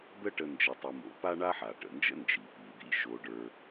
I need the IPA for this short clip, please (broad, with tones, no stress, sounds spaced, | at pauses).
d̪ ə˥ ʈ ə˧ n d͡ʒ ə˧ tˤ ɨ˧ m o̰˧ p a˥ ɳ a˥ ħ a˩ ʈ ə̰˩ n d͡ʒ ə̰˥ n d͡ʒ i˩ p i˩ d̪ ḭ˥ ʃ o˧ ɖ ə˞˧